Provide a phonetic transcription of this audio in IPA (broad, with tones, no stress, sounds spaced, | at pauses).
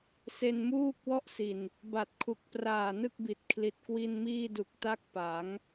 s e˧ n m uː˥˩ k̚ w ɔ˥˩ ʔ s i˨˩ n | b a˨˩ t̚ kʰ u˨˩ k̚ p r aː˨˩ n ɯ˥˩ k̚ b i˨˩ t̚ kʰ l i˨˩ t̚ k w i˧ n m iː˥˩ d u˨˩ k̚ t a˥˩ k̚ p a˩˦ ŋ